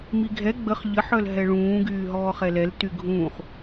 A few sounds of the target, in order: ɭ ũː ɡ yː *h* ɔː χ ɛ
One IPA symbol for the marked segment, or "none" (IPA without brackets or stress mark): ɦ